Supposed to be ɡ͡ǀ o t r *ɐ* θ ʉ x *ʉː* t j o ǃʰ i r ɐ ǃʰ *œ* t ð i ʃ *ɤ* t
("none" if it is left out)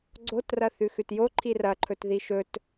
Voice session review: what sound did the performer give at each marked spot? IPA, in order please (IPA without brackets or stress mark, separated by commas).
ɐ, ʉ, ɵ, ɵ